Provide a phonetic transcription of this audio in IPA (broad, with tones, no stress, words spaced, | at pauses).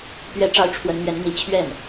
pɥɛ˥˧ʈ͡ʂɑ˥˩ʊ̯ ʈ͡ʂʰwə˧˥nmɥɛ˧˥nn̪i˧˥ t͡ɕʰɥɛ˥˩n